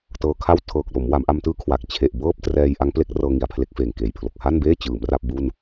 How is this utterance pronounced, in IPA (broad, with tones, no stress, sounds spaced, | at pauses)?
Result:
t ɤː˧ kʰ a˥˩ w tʰ ɤː˨˩ k̚ l o˩˦ m w a˩˦ m ʔ a˧ m t ɯː˦˥ kʰ w a˨˩ k̚ t͡ɕʰ e˨˩ ʔ b ɤː˥˩ p̚ t r ɛː˧ j ʔ a˦˥ ŋ p l e˦˥ k̚ r ɤː˧ ŋ i˩˦ a̯ pʰ l e˦˥ k̚ f eː˨˩ ŋ k eː˨˩ j pʰ l o˨˩ k̚ h a˥˩ n b eː˥˩ t͡ɕ ɯː˩˦ m r a˥˩ p̚ b u˥˩ n